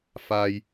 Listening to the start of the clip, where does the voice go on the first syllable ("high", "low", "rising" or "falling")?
high